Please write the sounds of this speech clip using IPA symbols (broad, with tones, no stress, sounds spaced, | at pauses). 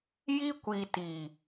j i˧ kʷ i˨ t i˨